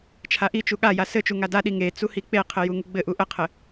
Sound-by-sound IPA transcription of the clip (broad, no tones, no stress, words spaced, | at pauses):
t͡ʃʰaʔit͡ʃu ɠaja sɘt͡ʃu ŋadaɗi ŋe t͡suhik͡peqʰɘ juŋuɡ͡bɘʔu ʔəqʰɘ